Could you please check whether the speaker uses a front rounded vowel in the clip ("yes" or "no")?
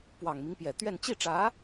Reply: no